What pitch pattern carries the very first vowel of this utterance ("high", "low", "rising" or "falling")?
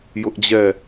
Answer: high